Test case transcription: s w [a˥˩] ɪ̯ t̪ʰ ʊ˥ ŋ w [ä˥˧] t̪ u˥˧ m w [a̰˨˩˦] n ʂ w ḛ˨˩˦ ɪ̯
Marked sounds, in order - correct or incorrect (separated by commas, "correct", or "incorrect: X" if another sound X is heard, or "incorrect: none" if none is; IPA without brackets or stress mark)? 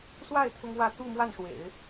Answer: correct, correct, incorrect: a˥˩